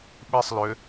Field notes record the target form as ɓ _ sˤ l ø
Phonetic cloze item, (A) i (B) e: A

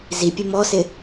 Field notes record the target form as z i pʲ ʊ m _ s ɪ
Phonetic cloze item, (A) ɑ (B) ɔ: B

